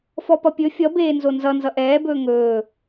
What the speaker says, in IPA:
f ɔ p ʌ pʲ ɵ fʲ ʌ b eː n z o n z ʌ n z ʌ ʔ ɛː b ɵː ŋ ɵː

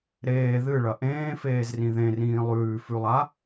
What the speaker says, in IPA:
ɾ eː ð ɨ ɭ ɐ ʔ ẽː f eː z r ĩ ð ẽ r ĩː lˠ ʉː f ʉ lˠ a

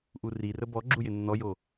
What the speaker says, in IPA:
ʔ u r i r ə b ɔ ɡ͡ǁ u j ɪ nː ɔ j o

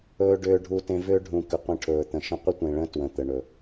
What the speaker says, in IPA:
ɵː˧ ɖ ʏː˧ ɖʱ u˧ t ẽ˧ v ʏː˦ ɖʱ ũ˨ k ʏ˨ qʷ ẽ˧ ʈʰ ɵː˨ t̪ ə̃˨ ʃ ə̃˦ qʷ ə˦ tʷ ẽ˨ ɭ ə̃ː˦ t w ə̃˨ t̪ ə˨ ɳ ɵ˨

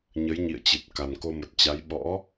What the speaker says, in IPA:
ɲ ə˨˦ j ɲ ḭ˧˨ ə̯ t͡ɕ ɨ˨˩ t̚ k a˨˩ n k o˧ m ə˨˩ t̚ t͡ɕ a˨˦ j ɓ ɔ̰˧˥

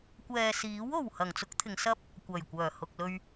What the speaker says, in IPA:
kʷ ɛː˨ s iː˨˥ w o˨˩ w h ɐ˨˩ ŋ t͡s ʊ˥ k̚ t̪ʰ ɪ˨˧ ŋ s ɐ˥ p̚ | kʷ ɐ˨˩ j kʷ œː˨˩ h ʊ˨ k̚ l ɵ˧ ɥ

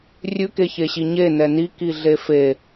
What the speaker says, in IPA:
rʲ ʉ k e ç e ɕ i ɲ e n ɛ n i k i ɮ e f e

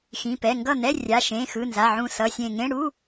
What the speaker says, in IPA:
x ĩ˩˧˩ p ɛ˩˧˩ ŋ ɡ ʌ˥˩ n̪ ɛ˧˥˧ rʲ a˩˧˩ ʃ ẽ˩˧˩ x ɯ˩˧˩ n z a˩˧˩ ʕ ũ˧˩ s ʌ˩˧˩ sʲ ẽ˧˩ ŋ ẽ˧˥˧ ɽ u˧˥˧

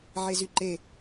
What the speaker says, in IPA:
ʕ e z y ǃ e

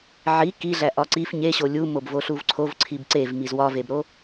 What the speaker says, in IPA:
ʕ i k i ɮ æ ʔ ɒ ǀ i f ɲ e ɕ o lʲ u m o b v o ɬ u v ǀʰ o v ǀʰ i b ǀ e v m i z w ɒ v e b ɾ o

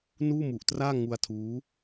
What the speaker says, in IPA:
n uː˥˩ m u˨˩ ʔ t r aː˥˩ ŋ u˧ a̯ tʰ uː˦˥

